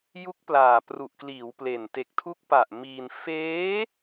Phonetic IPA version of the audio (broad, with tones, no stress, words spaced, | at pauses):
ju˦˥k̚ plaː˨˩pru˨˩ʔkliː˩˦w ple˨˩n te˨˩k̚tʰu˦˥k̚pa˨˩ʔ miː˧n feː˦˥